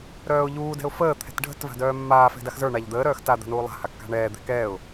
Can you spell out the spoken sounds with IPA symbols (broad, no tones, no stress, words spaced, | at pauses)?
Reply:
ɾœːʊ̯ʎuː dɛ̤ʊ̯fəː t̪ʰɛ̤tɖʱə̤t va̤dœːmːaː fɛ̤daxzə˞ ɳaʎd̪əː ɾœːxta d̪a̤nuːlˠa̤ hakːa̤ɳɛː d̪ɛ̤kɛːʊ̯